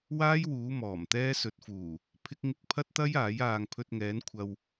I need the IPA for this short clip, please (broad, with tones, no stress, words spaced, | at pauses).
waː˥jwuː˨˧ mɔː˨˩mt̪ɛː˥ sɵ˨t̚fuː˨˩ | pʰɪ˥k̚ ŋɪ˧k̚ pʰɐ˥t̚t̪ɐ˥j aː˨˥jaː˧ŋ pʰɵ˧t̚ŋɛː˨˧n kʷʰɐ˨w